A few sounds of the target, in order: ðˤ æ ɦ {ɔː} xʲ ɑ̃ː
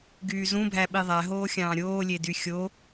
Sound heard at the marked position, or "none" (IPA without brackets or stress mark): oː